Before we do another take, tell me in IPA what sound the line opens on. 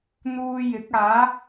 n̪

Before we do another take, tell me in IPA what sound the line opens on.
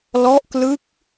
l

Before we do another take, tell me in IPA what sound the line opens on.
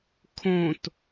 kʰ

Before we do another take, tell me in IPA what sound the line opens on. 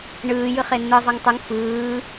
ɳ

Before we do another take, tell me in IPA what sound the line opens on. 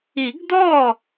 i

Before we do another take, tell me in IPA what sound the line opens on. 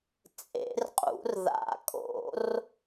t͡sʼ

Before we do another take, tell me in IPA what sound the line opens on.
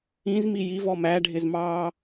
ĩ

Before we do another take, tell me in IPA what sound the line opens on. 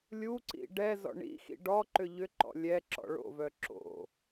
lʲ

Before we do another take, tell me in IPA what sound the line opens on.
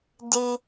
d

